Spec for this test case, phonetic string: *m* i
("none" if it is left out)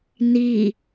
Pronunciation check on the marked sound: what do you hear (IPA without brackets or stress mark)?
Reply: n